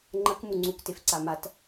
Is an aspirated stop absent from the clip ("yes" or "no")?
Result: yes